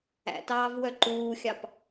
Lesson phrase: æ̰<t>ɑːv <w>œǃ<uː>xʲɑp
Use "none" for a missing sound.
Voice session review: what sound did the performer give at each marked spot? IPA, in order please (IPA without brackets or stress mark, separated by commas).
t, w, uː